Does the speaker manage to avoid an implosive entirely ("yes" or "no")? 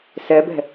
yes